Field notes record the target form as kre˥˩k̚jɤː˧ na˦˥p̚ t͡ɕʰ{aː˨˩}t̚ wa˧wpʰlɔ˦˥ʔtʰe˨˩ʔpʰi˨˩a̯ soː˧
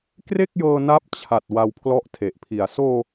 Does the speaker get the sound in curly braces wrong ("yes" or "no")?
yes